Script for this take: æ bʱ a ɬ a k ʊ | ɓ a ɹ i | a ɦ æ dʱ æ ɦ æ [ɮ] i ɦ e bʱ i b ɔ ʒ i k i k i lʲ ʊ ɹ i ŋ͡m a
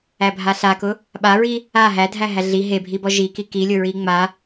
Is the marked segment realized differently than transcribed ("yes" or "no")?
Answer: no